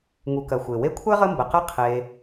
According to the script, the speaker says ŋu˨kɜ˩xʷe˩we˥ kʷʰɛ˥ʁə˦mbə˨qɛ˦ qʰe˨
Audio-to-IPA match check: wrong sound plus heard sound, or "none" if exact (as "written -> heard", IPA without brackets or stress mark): none